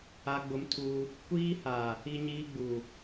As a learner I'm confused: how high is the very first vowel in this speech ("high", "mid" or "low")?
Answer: low